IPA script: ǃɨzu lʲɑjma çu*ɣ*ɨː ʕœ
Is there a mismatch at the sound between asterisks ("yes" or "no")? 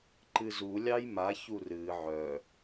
yes